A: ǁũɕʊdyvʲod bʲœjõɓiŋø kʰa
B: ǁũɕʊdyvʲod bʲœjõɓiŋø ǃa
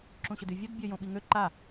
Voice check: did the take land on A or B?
B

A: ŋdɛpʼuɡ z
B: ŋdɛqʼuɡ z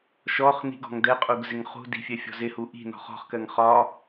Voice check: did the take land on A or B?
B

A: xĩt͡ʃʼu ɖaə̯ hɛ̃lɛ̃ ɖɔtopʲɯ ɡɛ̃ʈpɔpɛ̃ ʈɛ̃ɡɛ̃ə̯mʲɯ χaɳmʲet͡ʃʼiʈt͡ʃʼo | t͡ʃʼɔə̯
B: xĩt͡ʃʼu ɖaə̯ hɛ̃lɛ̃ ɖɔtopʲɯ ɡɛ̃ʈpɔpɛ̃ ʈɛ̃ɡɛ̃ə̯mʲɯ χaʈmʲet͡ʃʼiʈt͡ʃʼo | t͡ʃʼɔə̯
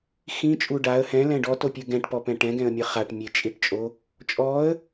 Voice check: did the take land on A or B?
B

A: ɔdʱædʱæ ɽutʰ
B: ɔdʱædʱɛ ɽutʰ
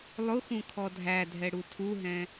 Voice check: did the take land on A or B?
B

